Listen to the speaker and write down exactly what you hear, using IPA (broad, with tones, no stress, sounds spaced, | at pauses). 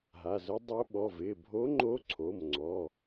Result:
ɦ a˩˧˩ z ʊ˧˥ dˤ o˧˥ ɓ ɔ˩˧˩ v ɪː˩˧˩ bʱ o˧˥ ŋ͡ǃ o˧˥ ǀʰ o˩˧˩ m ŋ͡ǀ ɔ˩˧˩